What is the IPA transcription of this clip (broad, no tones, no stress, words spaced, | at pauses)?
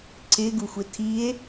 ǀɪ ɡuxʷɪtʰie̯